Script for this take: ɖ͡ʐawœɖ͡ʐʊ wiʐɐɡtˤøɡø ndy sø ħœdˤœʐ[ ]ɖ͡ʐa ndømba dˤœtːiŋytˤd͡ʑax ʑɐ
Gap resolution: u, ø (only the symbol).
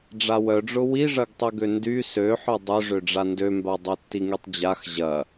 ø